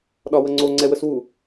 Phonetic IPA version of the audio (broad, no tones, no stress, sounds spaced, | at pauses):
ɗ ɒ w ə ŋ͡ǀ o ŋ͡ǀ ɛ w ə s w u